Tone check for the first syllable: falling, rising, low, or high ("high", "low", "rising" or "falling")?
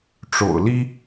low